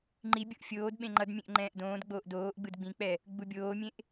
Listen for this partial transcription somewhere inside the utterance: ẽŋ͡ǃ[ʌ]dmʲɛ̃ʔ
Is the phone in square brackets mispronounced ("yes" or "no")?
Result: no